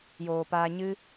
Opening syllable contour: low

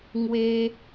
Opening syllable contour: high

